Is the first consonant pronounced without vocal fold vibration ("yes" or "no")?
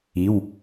no